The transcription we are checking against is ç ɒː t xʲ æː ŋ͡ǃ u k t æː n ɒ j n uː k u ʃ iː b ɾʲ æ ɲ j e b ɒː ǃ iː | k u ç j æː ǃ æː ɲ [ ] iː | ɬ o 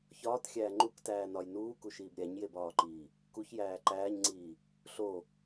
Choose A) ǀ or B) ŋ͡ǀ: B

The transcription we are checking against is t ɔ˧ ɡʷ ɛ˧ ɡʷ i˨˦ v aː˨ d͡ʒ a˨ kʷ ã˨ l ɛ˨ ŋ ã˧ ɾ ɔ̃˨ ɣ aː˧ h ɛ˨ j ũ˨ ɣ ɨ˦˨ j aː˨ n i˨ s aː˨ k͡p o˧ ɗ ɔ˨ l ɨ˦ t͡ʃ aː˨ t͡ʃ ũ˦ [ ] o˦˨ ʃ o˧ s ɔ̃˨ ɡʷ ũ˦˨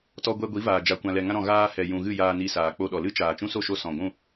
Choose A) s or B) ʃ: A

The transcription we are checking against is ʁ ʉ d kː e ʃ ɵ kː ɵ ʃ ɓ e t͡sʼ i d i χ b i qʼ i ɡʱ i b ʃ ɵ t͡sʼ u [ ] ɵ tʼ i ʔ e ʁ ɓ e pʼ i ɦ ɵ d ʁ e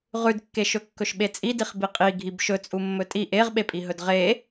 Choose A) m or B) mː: B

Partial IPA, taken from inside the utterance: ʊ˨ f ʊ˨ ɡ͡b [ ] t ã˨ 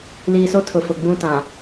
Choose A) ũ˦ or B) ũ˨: A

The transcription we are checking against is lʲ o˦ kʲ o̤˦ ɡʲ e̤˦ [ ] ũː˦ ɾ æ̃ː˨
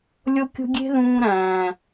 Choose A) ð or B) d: A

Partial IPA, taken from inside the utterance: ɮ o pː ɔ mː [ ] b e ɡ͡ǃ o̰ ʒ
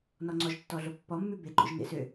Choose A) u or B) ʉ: B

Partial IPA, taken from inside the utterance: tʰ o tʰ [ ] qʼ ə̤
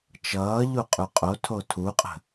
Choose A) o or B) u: B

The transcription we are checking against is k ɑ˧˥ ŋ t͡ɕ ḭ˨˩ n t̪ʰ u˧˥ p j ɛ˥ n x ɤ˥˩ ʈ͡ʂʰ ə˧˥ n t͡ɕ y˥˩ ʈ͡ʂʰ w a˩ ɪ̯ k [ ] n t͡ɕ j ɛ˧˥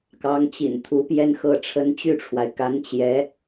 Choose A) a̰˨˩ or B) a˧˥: B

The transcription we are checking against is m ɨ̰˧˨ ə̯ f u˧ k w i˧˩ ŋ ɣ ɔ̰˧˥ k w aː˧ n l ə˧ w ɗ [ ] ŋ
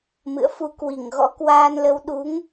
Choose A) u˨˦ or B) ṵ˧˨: A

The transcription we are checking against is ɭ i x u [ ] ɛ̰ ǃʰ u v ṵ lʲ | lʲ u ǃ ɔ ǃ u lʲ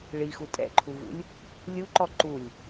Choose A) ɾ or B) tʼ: B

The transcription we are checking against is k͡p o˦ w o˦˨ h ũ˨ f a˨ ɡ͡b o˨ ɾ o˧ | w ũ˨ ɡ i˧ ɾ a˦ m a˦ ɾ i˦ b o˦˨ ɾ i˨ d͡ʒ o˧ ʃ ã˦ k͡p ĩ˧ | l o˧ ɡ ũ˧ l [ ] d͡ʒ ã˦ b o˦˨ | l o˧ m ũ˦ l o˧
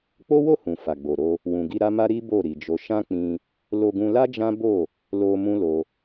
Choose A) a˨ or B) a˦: B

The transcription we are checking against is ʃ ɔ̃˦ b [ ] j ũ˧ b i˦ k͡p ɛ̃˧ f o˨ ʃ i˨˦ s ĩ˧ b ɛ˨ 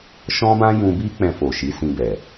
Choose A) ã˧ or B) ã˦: B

